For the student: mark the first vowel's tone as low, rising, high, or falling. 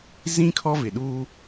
high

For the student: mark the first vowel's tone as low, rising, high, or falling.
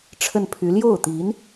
falling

